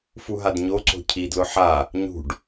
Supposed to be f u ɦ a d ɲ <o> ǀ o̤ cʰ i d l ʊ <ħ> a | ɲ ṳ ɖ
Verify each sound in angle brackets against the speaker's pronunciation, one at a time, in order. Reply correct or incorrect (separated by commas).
correct, correct